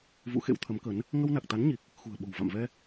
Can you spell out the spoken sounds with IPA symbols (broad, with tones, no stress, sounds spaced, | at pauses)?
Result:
v ṵ˧˥ x ḛ˧˥ w t̪ʰ ə˨˦ m k ə˨˦ n | ŋ ə˧ w n a˨˩ k̚ t̪ a˨˦ n ɲ i˨˩ k̚ | x ṳ˨˩ ə̯ ɓ o̤˨˩ w v a̰˧˨ m v ɛ˧